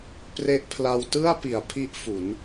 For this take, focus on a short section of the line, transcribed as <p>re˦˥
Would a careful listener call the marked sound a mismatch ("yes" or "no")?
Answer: no